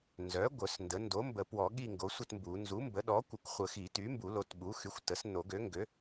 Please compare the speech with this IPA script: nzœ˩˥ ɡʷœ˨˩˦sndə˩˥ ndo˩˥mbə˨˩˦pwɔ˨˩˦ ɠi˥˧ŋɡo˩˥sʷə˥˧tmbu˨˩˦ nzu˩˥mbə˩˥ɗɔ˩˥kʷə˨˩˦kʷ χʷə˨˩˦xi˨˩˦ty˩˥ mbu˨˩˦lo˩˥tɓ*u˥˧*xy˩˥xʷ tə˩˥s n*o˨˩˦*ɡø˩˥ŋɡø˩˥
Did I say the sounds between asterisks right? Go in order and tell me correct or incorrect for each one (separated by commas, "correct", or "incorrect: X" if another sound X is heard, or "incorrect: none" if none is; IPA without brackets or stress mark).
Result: incorrect: u˩˥, correct